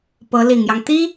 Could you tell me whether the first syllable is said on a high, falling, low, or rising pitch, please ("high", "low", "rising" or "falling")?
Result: rising